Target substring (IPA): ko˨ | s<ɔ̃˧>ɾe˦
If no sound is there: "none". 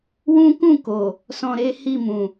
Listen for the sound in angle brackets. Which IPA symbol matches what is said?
ɔ̃˧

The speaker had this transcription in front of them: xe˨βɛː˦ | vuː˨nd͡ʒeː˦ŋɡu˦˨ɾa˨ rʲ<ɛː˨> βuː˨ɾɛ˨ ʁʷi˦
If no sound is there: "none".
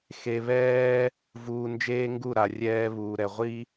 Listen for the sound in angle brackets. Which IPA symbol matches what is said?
ɛː˦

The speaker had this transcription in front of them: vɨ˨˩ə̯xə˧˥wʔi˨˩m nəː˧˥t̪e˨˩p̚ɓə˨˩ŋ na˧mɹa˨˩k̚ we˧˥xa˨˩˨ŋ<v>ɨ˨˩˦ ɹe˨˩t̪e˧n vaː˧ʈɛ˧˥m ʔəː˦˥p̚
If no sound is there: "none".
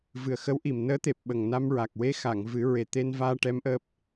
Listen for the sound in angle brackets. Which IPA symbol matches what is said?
v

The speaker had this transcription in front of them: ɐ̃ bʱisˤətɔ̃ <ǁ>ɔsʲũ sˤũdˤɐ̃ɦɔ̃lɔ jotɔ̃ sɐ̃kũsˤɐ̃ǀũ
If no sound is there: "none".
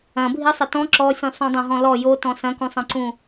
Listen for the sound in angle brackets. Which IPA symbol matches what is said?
ǁ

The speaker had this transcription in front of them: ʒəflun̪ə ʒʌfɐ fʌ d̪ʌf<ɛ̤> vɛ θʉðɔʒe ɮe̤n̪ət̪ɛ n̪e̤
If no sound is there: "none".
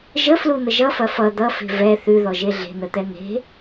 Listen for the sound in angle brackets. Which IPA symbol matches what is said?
e̤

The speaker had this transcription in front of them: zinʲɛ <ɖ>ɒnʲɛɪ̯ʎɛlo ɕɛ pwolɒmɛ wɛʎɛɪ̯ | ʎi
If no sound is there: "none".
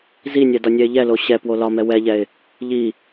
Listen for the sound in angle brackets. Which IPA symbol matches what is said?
d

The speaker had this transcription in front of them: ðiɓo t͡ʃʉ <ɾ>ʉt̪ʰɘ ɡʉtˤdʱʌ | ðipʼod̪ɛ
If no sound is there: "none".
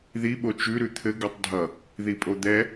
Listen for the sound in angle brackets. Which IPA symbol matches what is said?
ɾ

